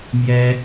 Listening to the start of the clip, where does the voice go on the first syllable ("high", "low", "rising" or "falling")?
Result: high